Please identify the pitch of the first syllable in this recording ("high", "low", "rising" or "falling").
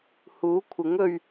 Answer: rising